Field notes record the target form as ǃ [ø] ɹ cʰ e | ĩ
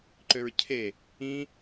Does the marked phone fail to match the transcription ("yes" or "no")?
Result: no